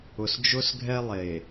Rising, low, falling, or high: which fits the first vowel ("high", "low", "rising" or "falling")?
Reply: low